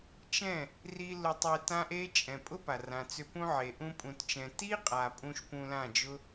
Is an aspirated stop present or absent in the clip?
absent